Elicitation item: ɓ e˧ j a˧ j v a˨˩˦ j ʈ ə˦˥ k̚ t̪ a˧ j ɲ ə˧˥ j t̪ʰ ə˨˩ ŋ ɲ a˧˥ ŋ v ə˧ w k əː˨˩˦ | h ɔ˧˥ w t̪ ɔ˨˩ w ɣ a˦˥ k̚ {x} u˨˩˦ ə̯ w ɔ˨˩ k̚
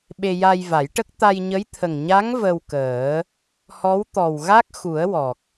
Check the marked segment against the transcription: correct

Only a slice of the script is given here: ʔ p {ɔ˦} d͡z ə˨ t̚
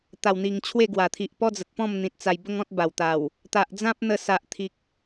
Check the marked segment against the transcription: correct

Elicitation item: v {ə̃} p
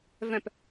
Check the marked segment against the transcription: incorrect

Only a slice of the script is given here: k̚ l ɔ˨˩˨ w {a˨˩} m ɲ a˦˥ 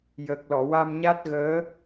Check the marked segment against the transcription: incorrect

